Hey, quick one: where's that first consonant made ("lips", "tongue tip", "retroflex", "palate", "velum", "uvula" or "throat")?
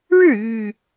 retroflex